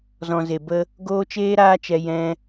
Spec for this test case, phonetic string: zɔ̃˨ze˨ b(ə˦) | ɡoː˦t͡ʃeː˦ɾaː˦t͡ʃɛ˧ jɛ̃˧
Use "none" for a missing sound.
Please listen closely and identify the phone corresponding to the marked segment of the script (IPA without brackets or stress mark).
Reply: ə˦